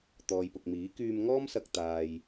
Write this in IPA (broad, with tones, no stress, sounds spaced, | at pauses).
t̪ ɔː˨ j p ʊ˨ k̚ m iː˨˥ k yː˧ m ŋ ɔː˥ m s ɐ˧ k̚ t̪ aː˨ j